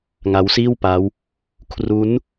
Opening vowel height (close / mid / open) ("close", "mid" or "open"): open